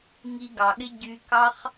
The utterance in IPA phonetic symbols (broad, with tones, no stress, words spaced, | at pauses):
ŋi˧ɡɑ˨ɠɪ˦ ɟy˧kɑ˦χ